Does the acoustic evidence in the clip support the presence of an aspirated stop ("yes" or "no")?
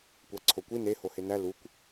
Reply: yes